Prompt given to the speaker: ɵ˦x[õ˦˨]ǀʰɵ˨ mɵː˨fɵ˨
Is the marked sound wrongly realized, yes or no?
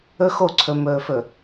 yes